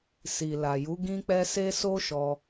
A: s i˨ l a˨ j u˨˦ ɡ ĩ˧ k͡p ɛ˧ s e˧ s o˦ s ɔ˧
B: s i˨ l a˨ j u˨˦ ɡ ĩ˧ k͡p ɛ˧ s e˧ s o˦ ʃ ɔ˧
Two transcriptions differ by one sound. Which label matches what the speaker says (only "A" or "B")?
B